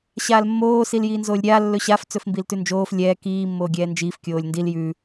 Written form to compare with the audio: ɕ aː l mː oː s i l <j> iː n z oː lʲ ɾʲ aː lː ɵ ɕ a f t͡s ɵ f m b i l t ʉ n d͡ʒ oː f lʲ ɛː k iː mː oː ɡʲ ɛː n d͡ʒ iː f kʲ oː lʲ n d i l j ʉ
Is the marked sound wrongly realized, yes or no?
no